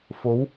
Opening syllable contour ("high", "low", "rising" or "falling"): rising